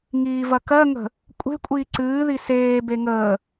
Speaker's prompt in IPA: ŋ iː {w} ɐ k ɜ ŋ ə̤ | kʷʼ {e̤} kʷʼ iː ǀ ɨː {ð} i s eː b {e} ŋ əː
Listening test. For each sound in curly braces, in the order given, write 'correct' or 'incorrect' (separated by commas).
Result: incorrect, correct, correct, correct